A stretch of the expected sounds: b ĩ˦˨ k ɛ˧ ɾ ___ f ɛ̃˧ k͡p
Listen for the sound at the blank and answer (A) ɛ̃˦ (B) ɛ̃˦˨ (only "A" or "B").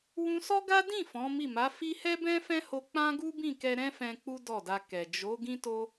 A